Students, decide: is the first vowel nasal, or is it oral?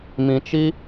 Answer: nasal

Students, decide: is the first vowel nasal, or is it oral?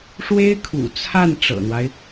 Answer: oral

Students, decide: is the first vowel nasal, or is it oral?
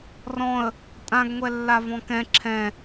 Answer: nasal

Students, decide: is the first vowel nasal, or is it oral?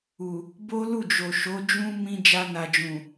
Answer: oral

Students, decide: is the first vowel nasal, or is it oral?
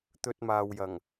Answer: oral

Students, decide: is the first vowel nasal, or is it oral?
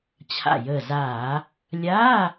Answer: oral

